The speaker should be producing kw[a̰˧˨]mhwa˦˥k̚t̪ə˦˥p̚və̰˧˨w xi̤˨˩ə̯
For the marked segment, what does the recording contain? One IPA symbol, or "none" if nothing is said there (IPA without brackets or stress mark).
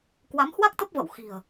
a˨˦